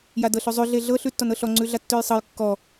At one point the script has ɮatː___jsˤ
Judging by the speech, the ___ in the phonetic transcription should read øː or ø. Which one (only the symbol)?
ø